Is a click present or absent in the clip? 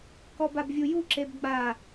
present